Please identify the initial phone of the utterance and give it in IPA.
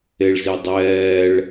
e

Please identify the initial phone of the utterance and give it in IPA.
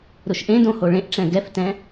ɾ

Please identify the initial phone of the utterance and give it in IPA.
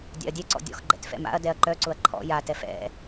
dʲ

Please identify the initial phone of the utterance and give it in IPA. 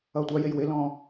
ʌː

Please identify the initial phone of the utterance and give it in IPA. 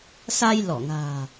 s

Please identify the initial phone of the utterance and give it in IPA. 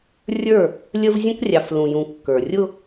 rʲ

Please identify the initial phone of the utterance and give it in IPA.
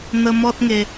n̪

